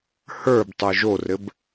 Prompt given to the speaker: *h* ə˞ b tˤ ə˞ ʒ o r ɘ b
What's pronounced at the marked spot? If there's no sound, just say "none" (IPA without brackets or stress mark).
h